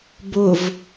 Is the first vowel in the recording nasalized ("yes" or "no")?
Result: no